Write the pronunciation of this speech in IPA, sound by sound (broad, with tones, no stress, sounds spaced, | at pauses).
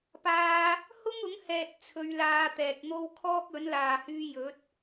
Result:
p aː˧ | h ʊ˥ ŋ ʊ˨˥ ŋ h ɛː˨ t̚ t͡sʰ ɵ˧ ɥ l aː˧ t̪ ɛː˨ k̚ n̪ o˥ w kʰ ɔː˥ k̚ ɵ˨˥ n l aː˨ h yː˧ j ɵ˨˥ t̚